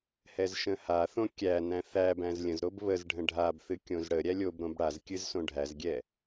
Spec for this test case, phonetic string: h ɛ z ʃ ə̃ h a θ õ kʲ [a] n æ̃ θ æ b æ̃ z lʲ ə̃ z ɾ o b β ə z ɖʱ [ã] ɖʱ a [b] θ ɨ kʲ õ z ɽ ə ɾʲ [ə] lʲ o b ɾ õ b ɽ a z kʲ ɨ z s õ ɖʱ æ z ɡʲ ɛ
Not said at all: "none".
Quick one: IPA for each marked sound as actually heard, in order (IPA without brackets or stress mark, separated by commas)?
æ, ə̃, b, æ